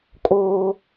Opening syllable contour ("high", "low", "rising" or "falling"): high